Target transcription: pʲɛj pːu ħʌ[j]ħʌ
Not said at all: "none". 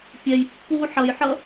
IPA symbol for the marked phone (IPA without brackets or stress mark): j